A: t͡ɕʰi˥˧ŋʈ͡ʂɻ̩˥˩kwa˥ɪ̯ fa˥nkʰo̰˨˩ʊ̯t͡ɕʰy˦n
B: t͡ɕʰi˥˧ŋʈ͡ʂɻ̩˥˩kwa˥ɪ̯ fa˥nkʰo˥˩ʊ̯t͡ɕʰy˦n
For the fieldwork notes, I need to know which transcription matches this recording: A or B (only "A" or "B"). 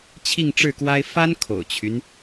A